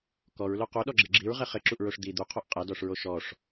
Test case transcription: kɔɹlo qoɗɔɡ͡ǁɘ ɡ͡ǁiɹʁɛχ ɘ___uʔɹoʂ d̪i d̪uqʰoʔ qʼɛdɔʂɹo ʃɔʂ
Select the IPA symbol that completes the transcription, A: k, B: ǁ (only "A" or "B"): B